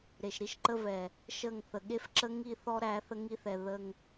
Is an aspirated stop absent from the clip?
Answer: yes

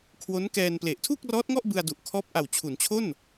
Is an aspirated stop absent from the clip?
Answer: no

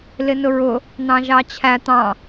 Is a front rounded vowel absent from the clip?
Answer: yes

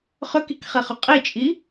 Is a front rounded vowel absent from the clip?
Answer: no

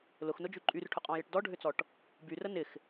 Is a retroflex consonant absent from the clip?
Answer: no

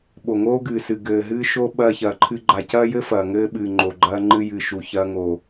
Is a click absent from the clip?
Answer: no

